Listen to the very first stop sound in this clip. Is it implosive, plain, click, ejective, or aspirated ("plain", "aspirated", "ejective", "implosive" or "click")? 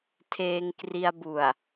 aspirated